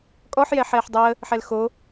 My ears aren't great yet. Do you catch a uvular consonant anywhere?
no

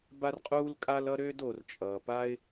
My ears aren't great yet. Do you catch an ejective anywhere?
yes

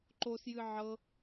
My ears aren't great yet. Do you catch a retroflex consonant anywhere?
no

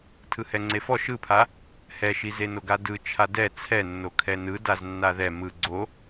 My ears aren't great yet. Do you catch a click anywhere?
yes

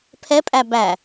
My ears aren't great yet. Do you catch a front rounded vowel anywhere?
no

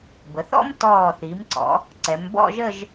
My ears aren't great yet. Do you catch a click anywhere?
yes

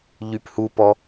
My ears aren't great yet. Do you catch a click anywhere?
no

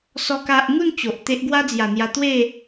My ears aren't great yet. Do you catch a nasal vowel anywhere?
no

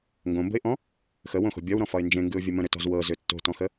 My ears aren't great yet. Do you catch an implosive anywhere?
no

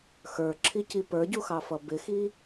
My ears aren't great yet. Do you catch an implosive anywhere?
no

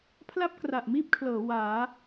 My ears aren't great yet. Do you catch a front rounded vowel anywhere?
no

